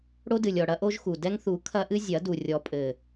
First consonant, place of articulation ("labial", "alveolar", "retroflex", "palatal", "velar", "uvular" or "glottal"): retroflex